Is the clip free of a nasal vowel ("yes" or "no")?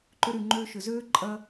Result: yes